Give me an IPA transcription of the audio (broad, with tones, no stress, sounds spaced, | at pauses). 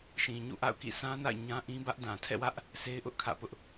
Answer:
ʃ ĩ˨ ɲ ṵ˦˨ ʔ a̰˦˨ ʊ̯ k ḭ˦˨ s ã˦ n a̰˦˨ ɪ̯ ɲ ã˦ ʔ ĩ˦ b ä˦ ʔ d ã˨ tʰ ɛ̰˦˨ w ä˦ ʔ | sʰ e˦ ɪ̯ ʔ ʊ˦ ʔ kʰ ä̰˦˨ p ʊ˦ ʔ